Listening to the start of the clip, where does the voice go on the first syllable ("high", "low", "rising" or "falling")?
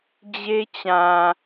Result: high